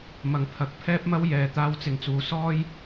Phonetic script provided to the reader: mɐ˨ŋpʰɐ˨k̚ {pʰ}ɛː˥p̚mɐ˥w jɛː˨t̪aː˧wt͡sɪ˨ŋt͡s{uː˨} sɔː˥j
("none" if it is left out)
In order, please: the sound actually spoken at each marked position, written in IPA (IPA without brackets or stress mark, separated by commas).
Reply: pʰ, uː˨˧